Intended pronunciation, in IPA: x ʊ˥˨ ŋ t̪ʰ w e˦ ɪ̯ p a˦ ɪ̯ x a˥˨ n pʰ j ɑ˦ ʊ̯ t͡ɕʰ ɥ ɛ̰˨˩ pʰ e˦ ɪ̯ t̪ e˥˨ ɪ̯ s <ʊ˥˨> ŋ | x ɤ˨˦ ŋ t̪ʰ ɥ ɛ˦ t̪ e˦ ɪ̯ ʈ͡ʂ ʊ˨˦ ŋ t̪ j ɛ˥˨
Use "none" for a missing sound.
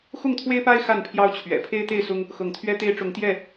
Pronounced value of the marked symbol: ʊ˦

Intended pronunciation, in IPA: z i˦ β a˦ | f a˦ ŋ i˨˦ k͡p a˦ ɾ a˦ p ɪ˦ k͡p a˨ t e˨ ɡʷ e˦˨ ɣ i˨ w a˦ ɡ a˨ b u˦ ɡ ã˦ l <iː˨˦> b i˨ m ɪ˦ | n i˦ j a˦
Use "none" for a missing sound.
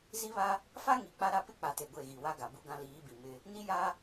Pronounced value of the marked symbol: iː˨˦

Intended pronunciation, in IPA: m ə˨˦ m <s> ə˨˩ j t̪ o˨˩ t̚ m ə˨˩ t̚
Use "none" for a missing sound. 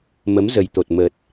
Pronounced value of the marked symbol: z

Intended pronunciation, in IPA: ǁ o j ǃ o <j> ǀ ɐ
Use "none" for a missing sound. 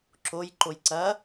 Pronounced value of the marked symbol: j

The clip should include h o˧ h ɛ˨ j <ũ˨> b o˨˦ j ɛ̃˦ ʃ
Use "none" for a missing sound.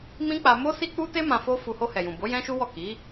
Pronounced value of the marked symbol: ũ˨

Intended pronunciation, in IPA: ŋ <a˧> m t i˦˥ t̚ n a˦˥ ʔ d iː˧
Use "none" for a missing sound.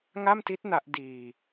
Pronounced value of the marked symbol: a˥˩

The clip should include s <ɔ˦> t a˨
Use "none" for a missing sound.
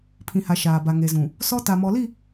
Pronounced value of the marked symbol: ɔ˦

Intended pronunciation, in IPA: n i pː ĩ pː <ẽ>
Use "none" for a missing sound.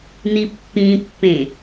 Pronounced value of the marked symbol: ẽ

